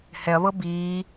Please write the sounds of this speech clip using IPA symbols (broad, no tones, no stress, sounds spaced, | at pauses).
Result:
h ɛ ɐ̯ β ɤ b iː